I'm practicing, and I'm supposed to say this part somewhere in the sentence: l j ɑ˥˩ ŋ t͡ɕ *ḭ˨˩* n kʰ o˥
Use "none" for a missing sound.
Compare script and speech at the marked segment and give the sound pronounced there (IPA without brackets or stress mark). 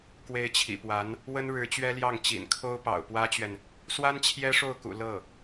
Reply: ḭ˨˩